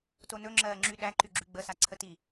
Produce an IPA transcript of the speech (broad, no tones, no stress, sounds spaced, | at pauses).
t o n ɵ ŋ͡ǁ ɜː ŋ͡ǁ y ɗ æ ǃ y ɡ͡ǁ y ɡ͡b ə s a ǀʰ ə t i